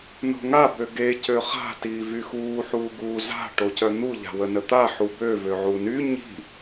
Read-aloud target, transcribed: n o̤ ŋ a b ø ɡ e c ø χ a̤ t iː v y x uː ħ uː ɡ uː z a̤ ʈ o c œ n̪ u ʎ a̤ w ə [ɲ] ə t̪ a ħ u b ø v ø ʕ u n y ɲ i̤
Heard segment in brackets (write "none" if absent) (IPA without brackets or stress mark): n